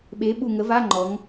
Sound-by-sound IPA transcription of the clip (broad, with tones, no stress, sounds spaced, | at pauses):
ɓ e˩˥ ɓ u˧˩ ŋ ə˩˥ v a˧˥˧ ŋ͡ǃ ɔ˩˧ ŋ